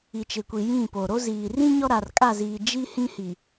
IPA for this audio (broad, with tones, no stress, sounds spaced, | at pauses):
i˨ t͡ʃ ɪ˨ kʷ i˨ j ĩ˦˨ p o˨ ɾ o˦ z iː˨ r ĩ˦ ɲ ɔ˦ ɾ a˨ r kʼ a˦˨ z iː˨ d͡ʒ i˦ h ĩ˦ h i˨